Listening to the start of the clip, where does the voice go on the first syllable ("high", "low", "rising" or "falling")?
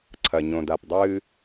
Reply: low